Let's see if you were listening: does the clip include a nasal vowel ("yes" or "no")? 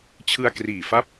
no